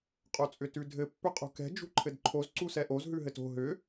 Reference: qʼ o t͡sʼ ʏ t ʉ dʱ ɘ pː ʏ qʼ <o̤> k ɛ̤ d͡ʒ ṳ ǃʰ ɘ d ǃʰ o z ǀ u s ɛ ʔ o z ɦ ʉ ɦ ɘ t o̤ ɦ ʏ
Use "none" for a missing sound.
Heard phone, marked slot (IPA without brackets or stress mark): ṳ